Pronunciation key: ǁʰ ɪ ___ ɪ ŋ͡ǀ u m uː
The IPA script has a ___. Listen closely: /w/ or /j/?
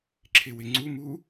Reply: w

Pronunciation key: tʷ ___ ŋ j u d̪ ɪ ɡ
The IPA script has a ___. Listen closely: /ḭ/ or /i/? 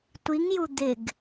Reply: i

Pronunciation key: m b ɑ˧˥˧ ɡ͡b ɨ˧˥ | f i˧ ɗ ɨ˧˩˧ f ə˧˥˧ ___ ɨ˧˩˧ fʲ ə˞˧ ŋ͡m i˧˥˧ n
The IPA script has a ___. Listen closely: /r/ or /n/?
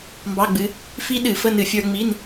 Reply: n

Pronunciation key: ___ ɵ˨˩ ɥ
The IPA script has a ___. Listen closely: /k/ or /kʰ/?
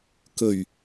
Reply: k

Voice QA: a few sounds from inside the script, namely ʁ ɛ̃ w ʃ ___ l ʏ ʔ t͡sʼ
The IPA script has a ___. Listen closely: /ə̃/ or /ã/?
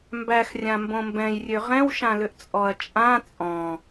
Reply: ã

